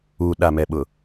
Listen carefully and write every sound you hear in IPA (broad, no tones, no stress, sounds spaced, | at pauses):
u ɗ a m ɛ ɓ ʊ